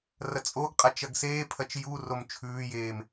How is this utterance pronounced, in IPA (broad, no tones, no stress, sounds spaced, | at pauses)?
r ɐ t͡sʼ o ɡ qʼ a t͡ʃ ɐ ɡ s eː pʰ ɐ t͡ʃ j u r o m t͡ʃʰ ʉː j eː m